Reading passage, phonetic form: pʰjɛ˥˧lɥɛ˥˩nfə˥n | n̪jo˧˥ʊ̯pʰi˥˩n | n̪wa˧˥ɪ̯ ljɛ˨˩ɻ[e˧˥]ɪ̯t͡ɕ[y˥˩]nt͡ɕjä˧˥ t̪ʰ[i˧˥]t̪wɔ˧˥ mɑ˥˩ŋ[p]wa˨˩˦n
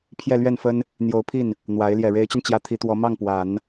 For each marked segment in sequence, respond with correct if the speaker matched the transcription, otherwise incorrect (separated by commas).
correct, incorrect, correct, correct